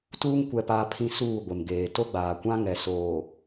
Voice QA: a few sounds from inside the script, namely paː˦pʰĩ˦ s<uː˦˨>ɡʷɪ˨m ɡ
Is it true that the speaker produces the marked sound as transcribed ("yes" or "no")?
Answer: yes